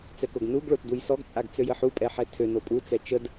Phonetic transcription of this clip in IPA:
t͡s ɛ k o ɡ n u ɡ ɭ o t d u j s ɔ ɡ t͡sʼ a ɡ t͡s ø j ə ħ u pʼ ɛ ħ ɛ tʰ ø n o pʼ u t͡s ɛ t͡ʃ ə d

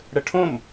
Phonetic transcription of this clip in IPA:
ɽ ə ʈʰ õ m

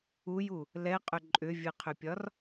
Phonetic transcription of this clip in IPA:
u j u | l ɛ qʼ ʏ ǃʼ ʏ vʲ ɨ qʰ ʏ pʲ ɒ r

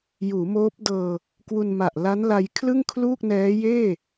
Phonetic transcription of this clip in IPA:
j uː˩˦ m oː˦˥ p̚ d ɤː˧ | k w u˧ n m a˨˩ ʔ l a˦˥ n l a˧ j kʰ l ɯ˥˩ ŋ kʰ l uː˥˩ k̚ n ɛː˦˥ j eː˥˩

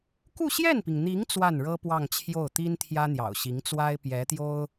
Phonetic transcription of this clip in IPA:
k u˥˧ ɕ j ɛ˥˩ n p i˩ ŋ n̪ i˧˥ ŋ t͡s w a˥˩ n ɻ ɤ˥ p w ɑ˥˧ ŋ t͡ɕʰ j o˥˩ ʊ̯ t̪ i˥ n t̪ʰ j ä˥ n̪ j ɑ̰˨˩ ʊ̯ ɕ i˧˥ ŋ t͡s w a˥ ɪ̯ p j ɛ˧˥ t̪ j o˥ ʊ̯

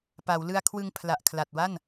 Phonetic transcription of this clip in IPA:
p a˩˦ w l ɯ˧ a̯ kʰ w ɯ˧ ŋ pʰ l a˨˩ ʔ kʰ l a˨˩ t̚ w a˥˩ n

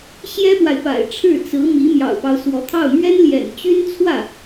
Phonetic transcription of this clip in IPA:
ɕ j ɛ˥ p w a˨ ɪ̯ f a̰˨˩ ɪ̯ ʈ͡ʂʰ ɻ̩˥˩ t͡s ɹ̩˧˥ m i˧˥ m j ɑ̰˨˩ ʊ̯ p ɑ˦ ʊ̯ s w ɔ˧˥ t̪ʰ ɑ˥˩ ʊ̯ m ɥ ɛ˥ n l j ɛ̰˨˩ n t͡ɕ y˥ n t͡sʰ w ä˥˩

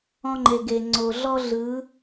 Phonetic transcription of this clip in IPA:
ɔ̃˦ ŋ͡ǃ e˨ ɡ e˨ ŋ͡ǀ o˨ ɮ ɔ˦ ɮ ɯ˨˦

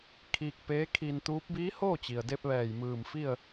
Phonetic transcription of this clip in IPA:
kʰ iː˧ k̚ p eː˧˥ kʰ iː˧ n t̪ uː˧˥ p̚ b iː˧˥ h oː˥˨ t͡ɕ i˩ ə̯ d e˧ p̚ ʋ ɛː˧˩ j m ɯː˧˩ m f i˥˨ ə̯

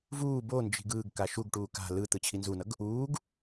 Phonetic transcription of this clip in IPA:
v uː b o n d͡ʒ i̤ ɡ ɯː ɡ k a ʃ u ɡ ʈ uː k a̤ l ɯ t̪ ɯ t͡ɕʰ i n z u n ʌ ɡ | uː ɡ

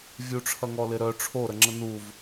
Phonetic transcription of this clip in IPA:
vʲ u ʈ͡ʂʰ ɐ ŋ ɔ l ɪ ɾ œ ʈ͡ʂʰ o ɾ ə ŋ͡ǁ ə n u v

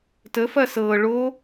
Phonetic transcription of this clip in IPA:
t ə f ɐ s ɤ ɭ o

